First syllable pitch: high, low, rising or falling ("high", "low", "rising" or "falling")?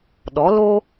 rising